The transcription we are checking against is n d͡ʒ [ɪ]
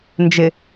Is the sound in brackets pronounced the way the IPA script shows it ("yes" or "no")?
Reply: yes